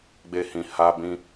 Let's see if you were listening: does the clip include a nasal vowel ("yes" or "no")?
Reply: yes